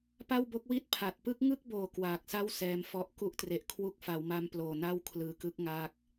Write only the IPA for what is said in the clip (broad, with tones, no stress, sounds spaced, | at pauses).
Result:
p a˥˩ w b o˦˥ k̚ w i˥˩ t̚ pʰ a˨˩ t̚ p ɯ˦˥ k̚ ŋ ɯ˥˩ k̚ b oː˨˩ k w aː˨˩ k̚ s a˥˩ w s ɛː˧ m f ɔ˦˥ ʔ k u˦˥ ʔ t r e˨˩ ʔ kʰ w u˦˥ k̚ f a˩˦ w m a˧ m p l oː˨˩ n a˥˩ w kʰ l ɯː˨˩ k ɯ˦˥ k̚ ŋ aː˥˩ k̚